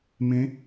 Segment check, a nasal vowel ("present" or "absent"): present